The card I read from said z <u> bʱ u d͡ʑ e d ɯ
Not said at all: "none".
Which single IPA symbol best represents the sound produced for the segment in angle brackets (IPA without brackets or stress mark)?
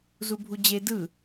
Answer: u